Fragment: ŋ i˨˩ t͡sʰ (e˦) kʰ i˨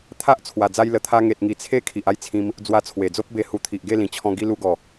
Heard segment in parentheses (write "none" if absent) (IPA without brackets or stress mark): e˦